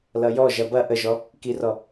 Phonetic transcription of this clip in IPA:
l ʌ j ɔ ʒ ɐ b ɐ ʔ ə ʒ ɔ | k i r ɔ

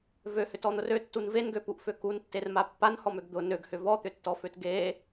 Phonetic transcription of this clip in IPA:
v ø h ʏ t ɔ n̪ ʊ r ø tː u n v e n ɡ ø p u ʔ f ø k u n tː e r m a pː a n h ɔ m ø ɡ d̪ ʊ n ø ɡ h ʏ v ɔ t̪ ʏ tː ɔ f ø t ɡ e

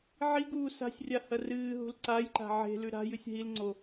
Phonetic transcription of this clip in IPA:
ʕ i ɡ uː s a̤ sʲ rʲ a h ɐ r ɨː ɦ ṳ l ǀ a j ǃ a̤ ʕ e̤ l ʉ ɾ a̤ j ɨ sʲ ɦ i l ŋ͡ǀ o

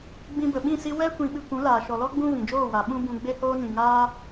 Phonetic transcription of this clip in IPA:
ɡ͡b ĩ˧ b ə˨ ɓ ĩ˦˨ s i˦ w ɛ˦ kʷ ĩ˧ ɓ ɨ˧ kʷ ũ˨˦ l aː˨ ʃ ɔ˨ l ɔ˦ ɡ͡b ũ˦ v ĩ˨ d͡ʒ oː˦˨ w a˨ ɓ ũ˦ b ũ˧ ɡ͡b e˦ h oː˦ n ĩ˨ ŋ aː˦

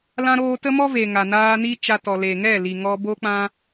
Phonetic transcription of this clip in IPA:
l ã˧ ɾ oː˧ t ə˦ m ɔ˦ v e˨ ŋ a˨ n aː˧ n i˦ t͡ʃ a˧ t ɔ˨ l e˨ ŋ ɛ˦˨ l i˨ ŋ ɔ˧ b o˦ k͡p ã˧

